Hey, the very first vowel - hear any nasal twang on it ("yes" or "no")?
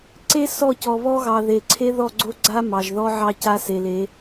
no